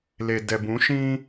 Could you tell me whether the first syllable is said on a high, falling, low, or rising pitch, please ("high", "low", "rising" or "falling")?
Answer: low